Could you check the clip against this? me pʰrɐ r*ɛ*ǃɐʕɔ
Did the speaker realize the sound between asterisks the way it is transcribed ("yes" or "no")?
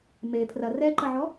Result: yes